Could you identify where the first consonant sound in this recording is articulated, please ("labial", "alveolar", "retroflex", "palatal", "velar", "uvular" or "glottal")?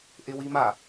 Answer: glottal